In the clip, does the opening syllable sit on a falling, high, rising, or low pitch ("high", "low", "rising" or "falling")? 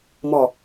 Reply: low